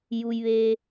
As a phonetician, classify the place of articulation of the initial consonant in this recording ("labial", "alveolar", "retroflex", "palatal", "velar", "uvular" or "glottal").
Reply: palatal